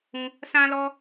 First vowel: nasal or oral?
nasal